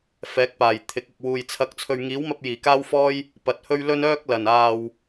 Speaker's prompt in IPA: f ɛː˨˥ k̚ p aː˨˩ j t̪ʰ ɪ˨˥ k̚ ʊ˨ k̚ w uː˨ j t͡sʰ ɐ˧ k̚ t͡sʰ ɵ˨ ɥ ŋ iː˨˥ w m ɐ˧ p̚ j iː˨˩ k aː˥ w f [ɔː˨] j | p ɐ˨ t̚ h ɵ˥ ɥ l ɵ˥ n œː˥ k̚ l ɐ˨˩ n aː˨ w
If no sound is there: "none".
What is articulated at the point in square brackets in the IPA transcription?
ɔː˥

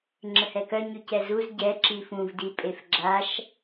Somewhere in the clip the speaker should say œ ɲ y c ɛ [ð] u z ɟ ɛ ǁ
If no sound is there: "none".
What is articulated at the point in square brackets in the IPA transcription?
z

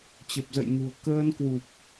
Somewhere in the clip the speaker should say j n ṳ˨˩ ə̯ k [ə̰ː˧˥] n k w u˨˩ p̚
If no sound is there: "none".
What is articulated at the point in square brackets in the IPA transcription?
əː˧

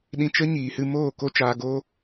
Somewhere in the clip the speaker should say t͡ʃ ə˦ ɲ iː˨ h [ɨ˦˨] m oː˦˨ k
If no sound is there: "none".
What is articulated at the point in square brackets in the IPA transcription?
ɨ˧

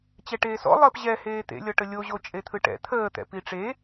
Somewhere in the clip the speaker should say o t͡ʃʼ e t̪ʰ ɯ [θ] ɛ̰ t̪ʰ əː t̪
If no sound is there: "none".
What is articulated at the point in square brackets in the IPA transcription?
ʈ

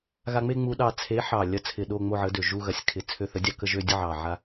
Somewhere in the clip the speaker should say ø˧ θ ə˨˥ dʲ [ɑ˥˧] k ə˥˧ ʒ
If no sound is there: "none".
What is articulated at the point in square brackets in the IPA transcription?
ɑ˧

